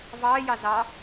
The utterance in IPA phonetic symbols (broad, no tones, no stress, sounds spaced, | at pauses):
v ɑː j ɑ z ɑ